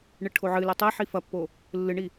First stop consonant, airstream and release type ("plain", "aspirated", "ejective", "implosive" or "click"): aspirated